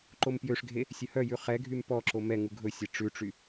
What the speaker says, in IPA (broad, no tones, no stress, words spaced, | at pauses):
ǃompjøʂɡʱe | sʲɵhœjʉ χɛɡʱym pɔǁo mɛŋu ɡʱɵsʲe ʈ͡ʂʉʈ͡ʂy